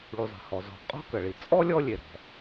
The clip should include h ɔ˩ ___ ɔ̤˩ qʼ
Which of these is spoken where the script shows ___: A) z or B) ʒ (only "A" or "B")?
A